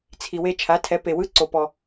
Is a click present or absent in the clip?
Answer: present